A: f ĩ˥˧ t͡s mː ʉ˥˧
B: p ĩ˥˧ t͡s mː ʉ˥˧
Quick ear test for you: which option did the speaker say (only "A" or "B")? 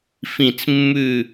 A